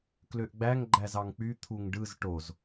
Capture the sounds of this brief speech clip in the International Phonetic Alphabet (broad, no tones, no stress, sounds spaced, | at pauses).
k l ø ʔ ɡ͡b æ ŋ ɡ͡ǃ æ z ɑ ŋ k͡p y t̪ʰ u ŋ ɖ ɯ z ʈ o z